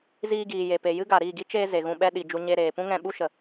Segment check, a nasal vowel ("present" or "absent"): present